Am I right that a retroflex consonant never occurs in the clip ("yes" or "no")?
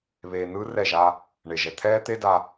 no